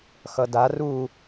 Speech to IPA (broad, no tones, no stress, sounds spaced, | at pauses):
x ʌ d a r u